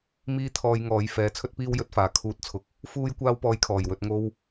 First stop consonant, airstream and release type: aspirated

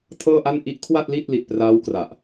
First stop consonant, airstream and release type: aspirated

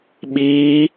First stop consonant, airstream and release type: implosive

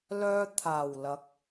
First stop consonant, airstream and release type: aspirated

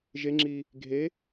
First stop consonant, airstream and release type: click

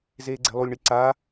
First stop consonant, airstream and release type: click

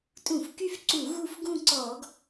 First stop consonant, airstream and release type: ejective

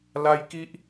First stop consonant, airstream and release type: plain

